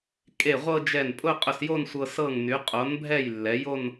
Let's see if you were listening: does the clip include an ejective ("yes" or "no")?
yes